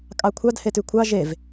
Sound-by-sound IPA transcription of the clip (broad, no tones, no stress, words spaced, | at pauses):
kʼɑkʷʰɑd hetʉkʷʰɑ ʒev